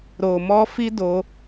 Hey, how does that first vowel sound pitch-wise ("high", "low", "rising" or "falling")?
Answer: low